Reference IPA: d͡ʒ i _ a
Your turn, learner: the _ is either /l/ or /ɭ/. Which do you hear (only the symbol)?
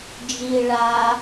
ɭ